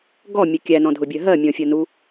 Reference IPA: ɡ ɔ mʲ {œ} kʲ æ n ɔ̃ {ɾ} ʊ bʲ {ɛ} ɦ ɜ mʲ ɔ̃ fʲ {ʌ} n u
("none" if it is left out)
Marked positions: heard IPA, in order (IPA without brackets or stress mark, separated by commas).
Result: ə, dʱ, ɜ, ʌ